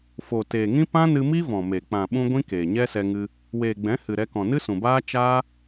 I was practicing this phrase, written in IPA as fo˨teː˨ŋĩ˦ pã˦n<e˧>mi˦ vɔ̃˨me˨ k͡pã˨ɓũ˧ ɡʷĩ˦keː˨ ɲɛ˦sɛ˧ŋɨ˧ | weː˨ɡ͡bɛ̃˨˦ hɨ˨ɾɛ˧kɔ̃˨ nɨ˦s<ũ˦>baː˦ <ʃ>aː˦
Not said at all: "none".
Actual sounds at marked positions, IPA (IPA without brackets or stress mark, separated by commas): ɨ˧, ũ˨, t͡ʃ